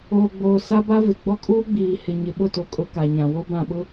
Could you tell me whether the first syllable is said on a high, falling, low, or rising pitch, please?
low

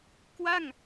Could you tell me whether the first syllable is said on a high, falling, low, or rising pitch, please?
falling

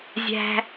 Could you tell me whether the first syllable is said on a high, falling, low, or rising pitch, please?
high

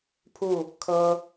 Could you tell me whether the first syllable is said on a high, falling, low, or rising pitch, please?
falling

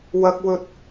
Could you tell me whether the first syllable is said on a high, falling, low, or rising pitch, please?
low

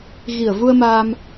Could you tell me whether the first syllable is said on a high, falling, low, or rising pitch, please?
low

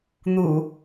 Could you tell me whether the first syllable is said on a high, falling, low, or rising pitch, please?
low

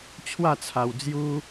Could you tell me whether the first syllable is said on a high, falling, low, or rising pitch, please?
falling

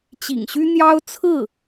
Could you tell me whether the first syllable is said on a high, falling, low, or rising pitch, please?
low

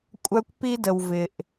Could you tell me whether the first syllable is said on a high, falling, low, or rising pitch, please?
high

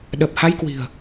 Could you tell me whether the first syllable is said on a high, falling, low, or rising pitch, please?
low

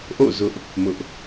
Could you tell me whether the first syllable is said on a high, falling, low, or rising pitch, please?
falling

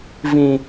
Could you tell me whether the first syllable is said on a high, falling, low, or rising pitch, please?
high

